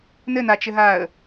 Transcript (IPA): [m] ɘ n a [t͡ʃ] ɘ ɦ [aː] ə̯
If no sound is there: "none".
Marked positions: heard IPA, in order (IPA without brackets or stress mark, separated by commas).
n, t͡ʃ, aː